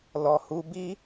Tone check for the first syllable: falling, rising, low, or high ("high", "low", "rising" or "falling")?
low